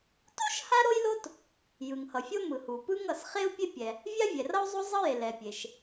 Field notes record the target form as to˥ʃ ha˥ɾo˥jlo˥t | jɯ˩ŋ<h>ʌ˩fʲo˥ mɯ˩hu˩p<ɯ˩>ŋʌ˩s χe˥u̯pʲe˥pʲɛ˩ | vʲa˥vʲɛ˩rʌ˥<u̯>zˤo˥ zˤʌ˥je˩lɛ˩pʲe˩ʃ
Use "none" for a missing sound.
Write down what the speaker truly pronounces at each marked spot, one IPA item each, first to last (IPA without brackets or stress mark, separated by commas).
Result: h, ɯ˥, u̯